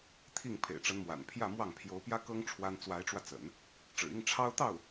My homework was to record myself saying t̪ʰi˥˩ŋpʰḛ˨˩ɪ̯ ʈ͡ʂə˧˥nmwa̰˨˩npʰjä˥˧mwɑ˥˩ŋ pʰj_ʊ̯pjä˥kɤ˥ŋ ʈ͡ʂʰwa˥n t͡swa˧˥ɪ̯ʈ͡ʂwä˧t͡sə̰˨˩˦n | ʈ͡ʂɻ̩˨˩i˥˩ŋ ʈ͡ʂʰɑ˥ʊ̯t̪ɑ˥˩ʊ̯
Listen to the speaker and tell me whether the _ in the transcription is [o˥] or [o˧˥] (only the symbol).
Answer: o˧˥